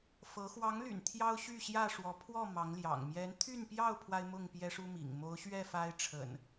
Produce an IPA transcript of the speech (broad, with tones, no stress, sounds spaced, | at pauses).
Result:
f ɤ˨˦ x w ɑ˨˦ ŋ l y̰˨˩ n t̪ʰ j ɑ˦ ʊ̯ ɕ y˥˨ ɕ j ä˥˨ ʂ w ɔ˨˦ pʰ w ɔ˥˨ m ɑ˨˦ ŋ l j ɑ̰˨˩ ŋ m j ɛ˨˦ n t̪ʰ y˥˨ n p j ɑ˥˨ ʊ̯ pʰ w a˦ ɪ̯ m ʊ˥˨ ŋ p j ɛ˦ ʂ u˦ m ḭ˨˩ ŋ m o˨˦ ʊ̯ ɕ ɥ ɛ˥˨ f a˦ ɪ̯ ʈ͡ʂʰ ə̰˨˩ n